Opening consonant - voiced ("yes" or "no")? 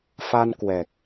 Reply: no